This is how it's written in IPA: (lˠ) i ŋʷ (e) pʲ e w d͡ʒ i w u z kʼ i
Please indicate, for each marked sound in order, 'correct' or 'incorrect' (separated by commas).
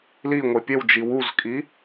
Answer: incorrect, correct